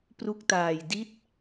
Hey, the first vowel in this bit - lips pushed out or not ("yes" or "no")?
yes